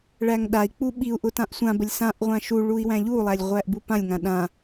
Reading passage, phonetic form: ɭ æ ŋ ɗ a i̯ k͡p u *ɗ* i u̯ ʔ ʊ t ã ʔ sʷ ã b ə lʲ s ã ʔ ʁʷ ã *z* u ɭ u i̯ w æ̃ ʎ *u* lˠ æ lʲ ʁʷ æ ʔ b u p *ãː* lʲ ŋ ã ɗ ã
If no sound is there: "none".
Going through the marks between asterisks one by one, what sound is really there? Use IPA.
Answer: ɓ, ʃ, u, ã

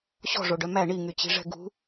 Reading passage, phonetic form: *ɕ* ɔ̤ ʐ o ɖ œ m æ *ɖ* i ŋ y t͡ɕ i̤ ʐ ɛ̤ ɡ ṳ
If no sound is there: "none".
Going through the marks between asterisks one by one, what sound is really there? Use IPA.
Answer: ɕ, ɳ

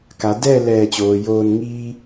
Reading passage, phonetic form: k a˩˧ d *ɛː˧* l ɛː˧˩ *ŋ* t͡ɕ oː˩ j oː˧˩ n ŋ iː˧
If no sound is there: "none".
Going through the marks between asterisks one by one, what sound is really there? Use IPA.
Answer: ɛː˥˨, none

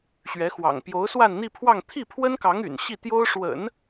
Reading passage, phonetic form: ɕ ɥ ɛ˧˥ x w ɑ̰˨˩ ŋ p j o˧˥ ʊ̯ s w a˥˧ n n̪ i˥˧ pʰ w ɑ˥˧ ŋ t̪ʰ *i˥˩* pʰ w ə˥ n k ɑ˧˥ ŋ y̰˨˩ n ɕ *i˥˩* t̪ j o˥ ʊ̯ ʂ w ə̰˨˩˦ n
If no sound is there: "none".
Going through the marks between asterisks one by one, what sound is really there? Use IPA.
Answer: i˥˩, i˥˩

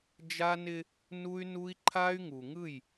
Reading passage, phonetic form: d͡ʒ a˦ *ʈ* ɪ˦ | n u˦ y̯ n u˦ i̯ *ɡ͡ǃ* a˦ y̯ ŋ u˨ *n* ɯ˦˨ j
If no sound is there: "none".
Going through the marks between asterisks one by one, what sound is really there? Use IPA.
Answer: n, ǃʰ, ŋ

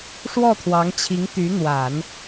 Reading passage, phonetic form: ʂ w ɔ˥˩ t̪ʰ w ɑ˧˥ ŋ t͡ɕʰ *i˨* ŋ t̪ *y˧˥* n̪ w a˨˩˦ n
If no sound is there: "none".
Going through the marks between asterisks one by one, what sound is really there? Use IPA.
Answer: i˧˥, y˧˥

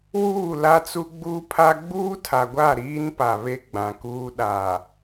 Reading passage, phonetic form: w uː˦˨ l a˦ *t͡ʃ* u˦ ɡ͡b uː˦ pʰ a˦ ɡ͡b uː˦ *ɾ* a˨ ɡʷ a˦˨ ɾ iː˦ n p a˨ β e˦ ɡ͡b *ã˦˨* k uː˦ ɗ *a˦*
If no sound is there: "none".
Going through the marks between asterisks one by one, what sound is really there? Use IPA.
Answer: t͡s, tʰ, ã˨, a˨

